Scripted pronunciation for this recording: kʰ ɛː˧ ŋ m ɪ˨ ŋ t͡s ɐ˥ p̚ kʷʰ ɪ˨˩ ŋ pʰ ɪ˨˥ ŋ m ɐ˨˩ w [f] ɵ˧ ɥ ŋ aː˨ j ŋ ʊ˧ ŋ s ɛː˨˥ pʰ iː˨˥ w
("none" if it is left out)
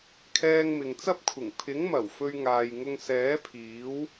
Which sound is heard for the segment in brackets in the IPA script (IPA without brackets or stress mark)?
f